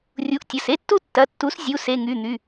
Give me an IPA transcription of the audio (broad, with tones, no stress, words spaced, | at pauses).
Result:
rʲu˩˥ʔtʲə˩˧˩se˥tːu˥ tːɐ˩˧˩tːu˩˥s zʲu˩˧˩ se˩˧˩ŋy˩˧˩n̪y˩˧˩